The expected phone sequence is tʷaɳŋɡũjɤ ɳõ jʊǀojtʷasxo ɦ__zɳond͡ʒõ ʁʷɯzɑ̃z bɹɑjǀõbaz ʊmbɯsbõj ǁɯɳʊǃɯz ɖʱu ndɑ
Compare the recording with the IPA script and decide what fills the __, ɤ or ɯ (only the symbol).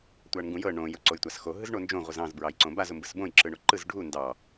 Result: ɯ